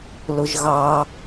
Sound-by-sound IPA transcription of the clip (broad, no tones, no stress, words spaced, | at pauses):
lʊʒɣɑ